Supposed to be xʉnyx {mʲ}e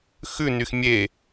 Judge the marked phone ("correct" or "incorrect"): correct